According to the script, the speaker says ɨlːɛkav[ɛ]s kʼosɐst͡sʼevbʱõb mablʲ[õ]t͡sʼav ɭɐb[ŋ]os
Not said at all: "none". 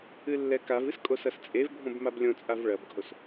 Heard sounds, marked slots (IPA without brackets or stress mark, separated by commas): ɨ, õ, ɡʱ